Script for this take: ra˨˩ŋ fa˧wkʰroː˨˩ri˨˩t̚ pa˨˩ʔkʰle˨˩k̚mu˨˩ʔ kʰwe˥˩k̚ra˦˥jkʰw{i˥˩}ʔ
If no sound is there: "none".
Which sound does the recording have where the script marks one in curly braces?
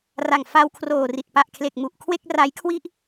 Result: i˥˩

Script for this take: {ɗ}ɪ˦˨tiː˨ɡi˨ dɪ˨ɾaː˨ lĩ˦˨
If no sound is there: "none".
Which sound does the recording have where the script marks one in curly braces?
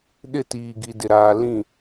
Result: ɗ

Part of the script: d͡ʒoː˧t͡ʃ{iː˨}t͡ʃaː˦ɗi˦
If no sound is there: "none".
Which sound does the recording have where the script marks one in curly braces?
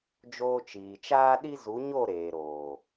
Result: iː˨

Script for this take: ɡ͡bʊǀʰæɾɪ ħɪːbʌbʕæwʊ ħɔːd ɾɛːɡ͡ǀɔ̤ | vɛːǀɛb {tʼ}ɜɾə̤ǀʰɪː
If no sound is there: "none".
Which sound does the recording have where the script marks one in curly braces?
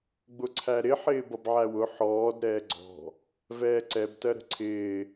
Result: t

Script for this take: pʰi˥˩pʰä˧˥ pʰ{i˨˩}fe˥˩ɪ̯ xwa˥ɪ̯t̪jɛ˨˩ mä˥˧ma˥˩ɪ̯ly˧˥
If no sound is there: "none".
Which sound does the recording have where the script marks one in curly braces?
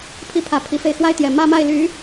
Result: i˨˩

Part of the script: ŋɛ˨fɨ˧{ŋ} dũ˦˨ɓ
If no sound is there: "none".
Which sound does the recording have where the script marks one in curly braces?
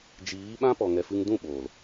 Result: ŋ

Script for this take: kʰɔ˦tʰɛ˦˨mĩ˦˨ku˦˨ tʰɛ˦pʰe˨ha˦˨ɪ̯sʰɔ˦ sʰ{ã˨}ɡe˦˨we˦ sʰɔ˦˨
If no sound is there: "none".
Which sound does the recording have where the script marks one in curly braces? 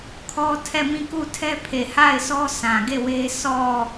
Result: ã˨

